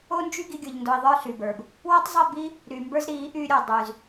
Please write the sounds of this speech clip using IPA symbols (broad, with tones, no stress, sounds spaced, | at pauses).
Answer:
o˦ n d͡ʒ y˦ ɡ i˦ ɡʲ ə˞˧ ʎ n d o˧ i̯ ðˤ ə˞˦ ɬ y˨ b ə˞˨ b | w ɔ˦ tˤ zˤ i˦˨ b i˦ | ɾ y˨ m b ə˞˦ z ɾ i˨˦ ʔ y˧ ɾʲ o˨ dˤ y˧ z